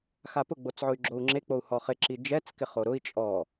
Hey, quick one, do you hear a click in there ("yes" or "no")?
yes